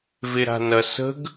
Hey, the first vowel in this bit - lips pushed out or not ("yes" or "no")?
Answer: no